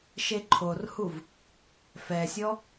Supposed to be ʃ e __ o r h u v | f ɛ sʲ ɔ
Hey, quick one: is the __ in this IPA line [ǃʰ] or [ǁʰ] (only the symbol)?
ǃʰ